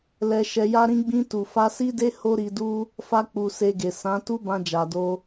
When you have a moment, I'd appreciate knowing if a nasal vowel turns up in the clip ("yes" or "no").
yes